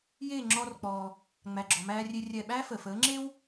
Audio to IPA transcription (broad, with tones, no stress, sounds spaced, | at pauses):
j eː˥˩ ŋ͡ǁ ɔː˧ r k͡p ɔː˩ | ŋ͡m æ˩ ɡ͡ǁ ɔ˩ m æː˧ rʲ e˧ rʲ ɛ˥˩ ɓ æː˥ f əː˩ f əː˩˥ ŋ͡ǁ e˥ w